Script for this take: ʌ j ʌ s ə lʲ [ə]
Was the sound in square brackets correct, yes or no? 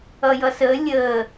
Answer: yes